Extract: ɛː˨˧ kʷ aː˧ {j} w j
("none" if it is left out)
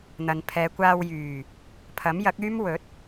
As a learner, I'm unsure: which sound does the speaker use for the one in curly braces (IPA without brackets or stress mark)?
none